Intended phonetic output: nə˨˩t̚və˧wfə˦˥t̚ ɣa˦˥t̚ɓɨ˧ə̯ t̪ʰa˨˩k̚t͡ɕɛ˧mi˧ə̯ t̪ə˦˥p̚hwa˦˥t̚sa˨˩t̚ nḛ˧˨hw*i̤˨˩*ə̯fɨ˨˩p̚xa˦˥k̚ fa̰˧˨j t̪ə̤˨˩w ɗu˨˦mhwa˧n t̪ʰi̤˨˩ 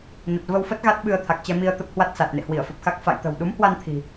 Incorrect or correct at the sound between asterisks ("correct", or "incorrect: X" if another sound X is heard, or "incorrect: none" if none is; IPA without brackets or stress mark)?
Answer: incorrect: i˧˩